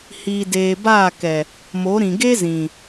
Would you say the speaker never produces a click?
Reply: yes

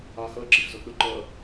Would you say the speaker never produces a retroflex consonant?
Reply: yes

